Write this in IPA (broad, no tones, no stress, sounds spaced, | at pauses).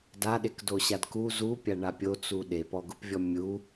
d a ɗ e k d o ɕ a d k u z u pʲ a ɳ a pʲ o t͡s u ɗ e p ɔ ɡ ʊ p vʲ ɔ mʲ u